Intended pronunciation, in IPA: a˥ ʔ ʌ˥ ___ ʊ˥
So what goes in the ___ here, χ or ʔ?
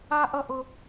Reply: ʔ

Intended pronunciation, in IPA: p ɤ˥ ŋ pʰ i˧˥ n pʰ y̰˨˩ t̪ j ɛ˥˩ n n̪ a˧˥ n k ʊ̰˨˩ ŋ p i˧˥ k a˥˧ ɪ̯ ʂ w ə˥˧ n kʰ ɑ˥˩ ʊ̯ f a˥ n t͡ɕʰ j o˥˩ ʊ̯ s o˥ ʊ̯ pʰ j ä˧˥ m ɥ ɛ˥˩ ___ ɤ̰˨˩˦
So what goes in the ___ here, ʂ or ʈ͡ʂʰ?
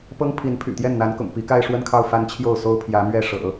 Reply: ʂ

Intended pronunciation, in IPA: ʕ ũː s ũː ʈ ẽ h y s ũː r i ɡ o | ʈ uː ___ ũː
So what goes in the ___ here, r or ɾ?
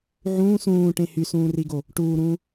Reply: ɾ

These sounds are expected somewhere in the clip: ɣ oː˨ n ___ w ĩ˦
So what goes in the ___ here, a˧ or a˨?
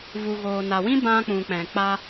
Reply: a˨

